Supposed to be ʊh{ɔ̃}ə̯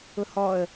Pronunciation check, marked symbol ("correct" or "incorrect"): incorrect